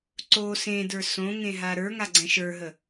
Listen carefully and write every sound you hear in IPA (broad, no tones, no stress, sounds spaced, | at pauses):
ǀ o s ẽ d ə˞ s õ ŋ ẽ ɦ a ɾ ə˞ ŋ a ɡ͡ǀ ɛ̃ ʃ ə˞ ɦ ə